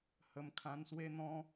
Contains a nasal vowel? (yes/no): yes